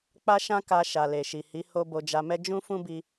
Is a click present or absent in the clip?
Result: absent